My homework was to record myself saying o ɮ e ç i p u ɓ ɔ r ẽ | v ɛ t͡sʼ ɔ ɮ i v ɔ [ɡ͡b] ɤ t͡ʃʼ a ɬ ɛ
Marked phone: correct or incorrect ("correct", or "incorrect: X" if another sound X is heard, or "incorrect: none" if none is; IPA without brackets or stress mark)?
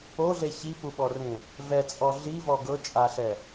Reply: incorrect: ɡ